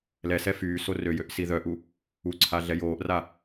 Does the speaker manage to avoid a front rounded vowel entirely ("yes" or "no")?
no